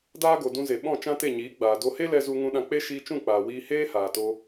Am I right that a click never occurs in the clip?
yes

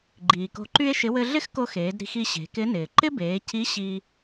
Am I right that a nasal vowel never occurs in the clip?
yes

